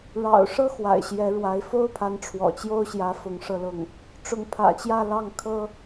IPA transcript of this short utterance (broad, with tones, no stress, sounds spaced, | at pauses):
ɻ ɑ̰˨˩ ʊ̯ ʂ ɤ˥ x w a̰˨˩ ɪ̯ ɕ j ɛ˧˥ ɻ w a˧˥ ɪ̯ f o˥ ʊ̯ pʰ a˧˥ n ʈ͡ʂʰ w ɔ̰˨˩ t͡ɕ j o˥ ʊ̯ ɕ j ä˧˥ f ʊ˧˥ ŋ ʂ ɤ˥˧ l ʊ˥˩ ŋ | ʈ͡ʂ ʊ˧˥ ŋ pʰ ä̰˨˩ t͡ɕ j ä˥˧ l ɑ˥˩ ŋ kʰ ɤ˥